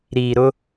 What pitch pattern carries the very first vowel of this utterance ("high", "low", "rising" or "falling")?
low